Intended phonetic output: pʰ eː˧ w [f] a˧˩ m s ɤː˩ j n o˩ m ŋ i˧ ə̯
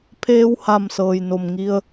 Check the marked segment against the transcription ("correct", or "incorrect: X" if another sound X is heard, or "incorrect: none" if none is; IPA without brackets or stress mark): incorrect: h